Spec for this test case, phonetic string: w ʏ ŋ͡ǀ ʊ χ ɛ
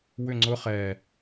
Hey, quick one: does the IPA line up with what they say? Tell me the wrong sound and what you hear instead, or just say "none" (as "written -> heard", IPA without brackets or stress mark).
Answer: none